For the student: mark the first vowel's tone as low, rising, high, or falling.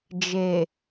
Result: low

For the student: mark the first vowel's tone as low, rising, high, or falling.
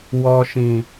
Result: low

